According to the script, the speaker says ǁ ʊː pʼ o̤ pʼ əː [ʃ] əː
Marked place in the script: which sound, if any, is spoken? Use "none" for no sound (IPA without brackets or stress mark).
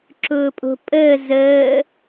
z